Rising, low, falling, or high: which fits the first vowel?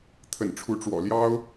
low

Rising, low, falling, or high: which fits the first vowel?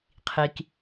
low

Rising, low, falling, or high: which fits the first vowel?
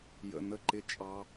low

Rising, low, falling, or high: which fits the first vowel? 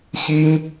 high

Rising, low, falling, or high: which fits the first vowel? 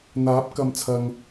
rising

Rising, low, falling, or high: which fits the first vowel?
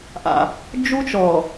low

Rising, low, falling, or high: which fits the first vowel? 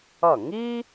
falling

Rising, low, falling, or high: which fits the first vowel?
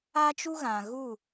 high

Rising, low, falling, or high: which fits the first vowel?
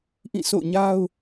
falling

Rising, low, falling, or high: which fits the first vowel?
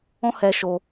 high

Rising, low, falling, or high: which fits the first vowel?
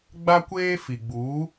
high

